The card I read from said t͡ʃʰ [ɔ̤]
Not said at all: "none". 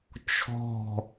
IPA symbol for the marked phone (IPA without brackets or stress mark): ɔ̤